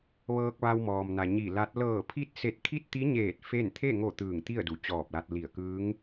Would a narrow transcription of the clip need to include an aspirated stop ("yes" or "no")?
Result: yes